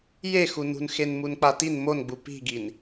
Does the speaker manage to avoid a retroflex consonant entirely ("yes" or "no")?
yes